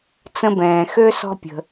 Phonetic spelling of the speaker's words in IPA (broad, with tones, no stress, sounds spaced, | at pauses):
t͡s ə̃˦ b ɛ̃ː˩ x ø˥ s ɔ̤˦ pʲ ə̤˩